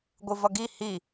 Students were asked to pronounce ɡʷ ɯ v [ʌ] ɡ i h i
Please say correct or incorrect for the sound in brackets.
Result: correct